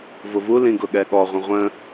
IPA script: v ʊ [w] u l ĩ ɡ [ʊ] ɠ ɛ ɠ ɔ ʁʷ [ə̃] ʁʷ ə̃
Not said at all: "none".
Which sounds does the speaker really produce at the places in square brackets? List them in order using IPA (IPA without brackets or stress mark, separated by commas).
v, ʊ, ə̃